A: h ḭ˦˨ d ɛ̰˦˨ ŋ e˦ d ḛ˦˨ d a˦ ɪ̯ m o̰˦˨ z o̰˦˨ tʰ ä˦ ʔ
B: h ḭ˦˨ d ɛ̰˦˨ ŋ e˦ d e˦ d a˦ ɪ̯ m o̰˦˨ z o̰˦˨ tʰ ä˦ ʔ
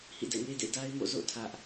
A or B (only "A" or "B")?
A